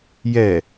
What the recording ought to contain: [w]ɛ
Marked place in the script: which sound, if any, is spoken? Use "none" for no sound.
j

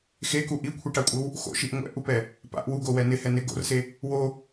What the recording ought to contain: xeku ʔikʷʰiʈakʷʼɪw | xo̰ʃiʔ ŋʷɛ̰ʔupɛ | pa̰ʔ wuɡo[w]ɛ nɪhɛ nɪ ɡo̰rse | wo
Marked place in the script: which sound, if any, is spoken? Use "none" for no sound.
w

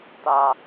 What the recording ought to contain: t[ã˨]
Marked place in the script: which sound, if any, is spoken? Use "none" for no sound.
a˨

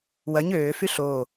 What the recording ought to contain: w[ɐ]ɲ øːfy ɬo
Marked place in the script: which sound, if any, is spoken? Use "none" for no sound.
ɐ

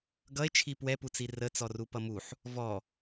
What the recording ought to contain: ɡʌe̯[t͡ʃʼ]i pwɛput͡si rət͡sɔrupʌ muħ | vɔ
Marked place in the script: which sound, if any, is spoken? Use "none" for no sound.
t͡ʃʰ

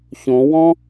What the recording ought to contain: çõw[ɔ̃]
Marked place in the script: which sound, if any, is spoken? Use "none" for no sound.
ɔ̃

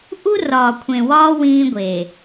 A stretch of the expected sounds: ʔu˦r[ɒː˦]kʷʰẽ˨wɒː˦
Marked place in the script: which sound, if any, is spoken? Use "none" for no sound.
ɒː˨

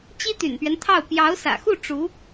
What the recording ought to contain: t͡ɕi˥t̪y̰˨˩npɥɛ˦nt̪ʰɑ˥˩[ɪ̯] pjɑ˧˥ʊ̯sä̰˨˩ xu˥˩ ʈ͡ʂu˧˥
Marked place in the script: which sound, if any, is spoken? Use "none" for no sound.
ʊ̯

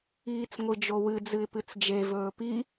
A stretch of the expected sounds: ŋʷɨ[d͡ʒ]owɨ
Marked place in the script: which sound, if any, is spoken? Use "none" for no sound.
d͡ʒ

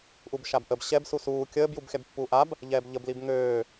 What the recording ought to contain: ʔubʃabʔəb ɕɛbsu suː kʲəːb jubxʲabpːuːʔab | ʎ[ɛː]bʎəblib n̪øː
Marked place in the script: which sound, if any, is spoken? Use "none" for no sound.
ɛː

